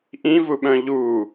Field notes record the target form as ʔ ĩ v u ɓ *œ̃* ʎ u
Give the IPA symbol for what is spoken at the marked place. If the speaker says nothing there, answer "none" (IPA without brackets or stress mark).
œ̃